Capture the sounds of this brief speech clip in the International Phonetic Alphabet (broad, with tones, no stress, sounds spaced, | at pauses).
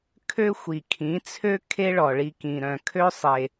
kʰ ø˦ xʷ i˨ kʰ ĩ˨˦ t͡sʰ ø˦ kʰ e˦ ɭ ɔ˨ ɭ i˧ k ĩ˨ ɾ œ̃˨ kʰ ø˦ sˤ e˨